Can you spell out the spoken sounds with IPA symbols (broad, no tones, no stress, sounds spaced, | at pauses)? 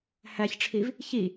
h æ ç ʈ͡ʂʰ i v | ç i